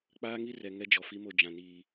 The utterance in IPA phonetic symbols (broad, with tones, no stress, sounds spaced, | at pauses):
k͡p aː˦ ŋ i˦ r ɛ˨ ŋ ɛ˦ d͡ʒ ɔ˨ f i˦ m o˦˨ d͡ʒ ã˨ n iː˨